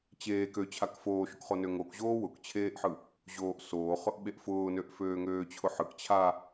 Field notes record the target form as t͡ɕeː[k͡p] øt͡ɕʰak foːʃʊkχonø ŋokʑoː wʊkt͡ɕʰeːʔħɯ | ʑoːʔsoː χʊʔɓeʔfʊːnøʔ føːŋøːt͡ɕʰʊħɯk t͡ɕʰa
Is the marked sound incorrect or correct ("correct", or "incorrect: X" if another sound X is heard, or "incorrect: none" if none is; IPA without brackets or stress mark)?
incorrect: k